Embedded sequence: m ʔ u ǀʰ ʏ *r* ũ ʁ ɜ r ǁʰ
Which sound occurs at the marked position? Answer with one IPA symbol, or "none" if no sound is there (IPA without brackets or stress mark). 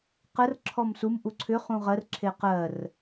χ